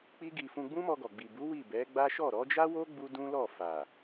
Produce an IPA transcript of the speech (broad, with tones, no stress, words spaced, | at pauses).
k͡pi˦ɡi˧ fũ˧ɡ͡bũ˦mɔ˧ɡɔ˨ ɡ͡bi˨bu˨˦ wi˦˨bɛ˨˦ɡ͡ba˦ ʃɔ˦˨ɾɔ˨˦d͡ʒa˦wo˦ ɡ͡bu˦dũ˦lɔ˦˨ fa˨